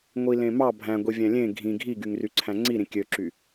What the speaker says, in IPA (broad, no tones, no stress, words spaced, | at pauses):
ŋʷilẽmɑ bʱæ̃ɡʷivʲæ̃ lʲẽ ɡʱĩ ɡʱiɡyŋ ryǀʰæ̃ŋ͡ǀi ɾĩkʲøǁy